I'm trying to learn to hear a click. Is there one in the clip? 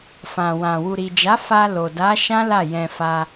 no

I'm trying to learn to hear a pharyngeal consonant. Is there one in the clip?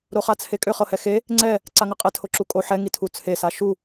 yes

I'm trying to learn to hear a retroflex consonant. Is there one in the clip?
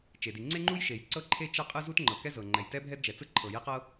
no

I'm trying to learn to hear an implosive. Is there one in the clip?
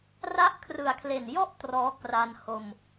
no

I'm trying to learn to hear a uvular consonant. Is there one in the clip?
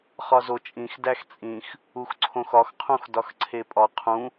yes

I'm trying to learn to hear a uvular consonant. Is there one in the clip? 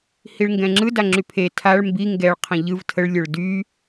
yes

